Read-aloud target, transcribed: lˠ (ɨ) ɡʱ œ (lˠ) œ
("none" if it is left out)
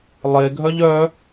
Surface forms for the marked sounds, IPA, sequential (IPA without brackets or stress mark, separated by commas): e, ʎ